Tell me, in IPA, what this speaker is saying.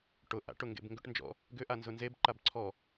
ʈ ʊ ʔ a̰ ʈ ʊ ŋ ɡ ḛ b ŋ ɡ ʏ ʈ n d͡ʒ ɔ̰ | ɡ ʏ ʔ a n z ʊ n z e b ǃ a b ǀʰ ɔ

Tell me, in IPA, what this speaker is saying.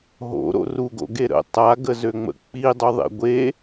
ɦ o̰ ɾ o̰ r u ɡ o̰ ɡ e ɾ ə̰ tˤ a ɡ ə z ø ŋ͡m ə̰ k͡p i dˤ u ðˤ ḛ ɡʷ e

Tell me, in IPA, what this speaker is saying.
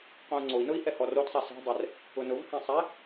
q õ u̯ ŋ͡ǀ o i̯ n ʊ i̯ h ɛ h ɔ r o t sˤ ɛ s ɛ̤ dˤ ɛ r | ʊ n ʊ v h ẽ sˤ ɛ

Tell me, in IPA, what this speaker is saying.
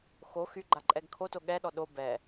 x o x y ɡ͡ǃ a ǃʼ ɛ ɡ kʰ o t o ɠ ɛ ɗ ɔ ɗ o b ɛ

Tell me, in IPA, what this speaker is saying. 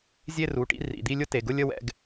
zʲ e˥˧ r u˩˧˩ ʈ ḭ˥˧ r ḭ˩˧˩ d̪ i˥˧ lʲ ʊ˥˧ t e˩˧˩ ɡ ʊ˥˧ lʲ ə˥˧ w ɛ̰˥˧ ɡ

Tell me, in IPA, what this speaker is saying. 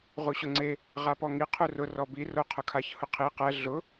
ʁ u ɕ ʊ ŋ͡ǀ e | ʁ a p ɔ ŋ i qʰ u r ʊ r ɔ b i r o qʰ ʊ kʰ a ç h ʊ qʰ i q ɛ ɮ ʊ

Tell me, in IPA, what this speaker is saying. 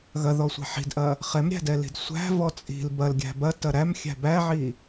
ɣ ɐ ð ɔ sʷ ɛ̤ ħ i̤ d ʔ ɐ | χ ɛ m ɾʲ æ̤ d ɛ l i̤ d sʷ æ̤ v ɔ t͡sʼ i̤ l b ɐ l ɡʲ æ̤ b ɐ t ɐ ɾ æ m xʲ æ̤ b æ ʕ i

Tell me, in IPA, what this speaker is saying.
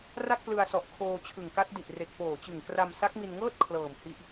r a˥˩ k̚ p l ɯ˧ a̯ s ɔ˨˩ ʔ kʰ oː˧ t͡ɕʰ ɯ˨˩ ŋ k a˦˥ t̚ d i˨˩ ʔ r e˨˩ k̚ p oː˨˩ t͡ɕ ɯ˨˩ ŋ k r a˧ m s a˦˥ k̚ m i˧ n ŋ ɤː˥˩ t̚ kʰ l ɤː˨˩ m h i˦˥ ʔ

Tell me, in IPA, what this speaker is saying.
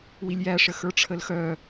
w i lʲ j æ ʂ ə x ə˞ ʈ͡ʂʰ ə l x œ

